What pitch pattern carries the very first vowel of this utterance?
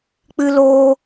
high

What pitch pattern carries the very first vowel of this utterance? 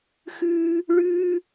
high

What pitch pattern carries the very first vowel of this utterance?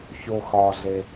low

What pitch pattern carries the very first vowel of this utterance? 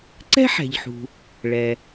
high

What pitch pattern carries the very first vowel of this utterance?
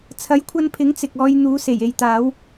rising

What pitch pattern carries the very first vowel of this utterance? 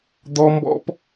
high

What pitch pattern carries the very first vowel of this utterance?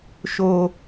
low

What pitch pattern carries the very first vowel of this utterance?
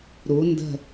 rising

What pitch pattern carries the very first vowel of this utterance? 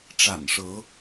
low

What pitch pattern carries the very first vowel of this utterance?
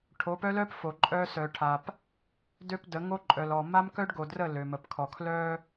rising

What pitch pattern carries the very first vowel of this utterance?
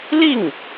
falling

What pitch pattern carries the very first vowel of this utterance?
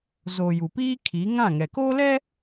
low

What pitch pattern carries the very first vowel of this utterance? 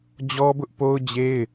high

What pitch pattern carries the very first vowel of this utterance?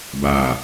low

